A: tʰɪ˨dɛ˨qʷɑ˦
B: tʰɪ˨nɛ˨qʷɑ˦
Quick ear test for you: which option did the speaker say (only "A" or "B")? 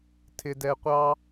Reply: A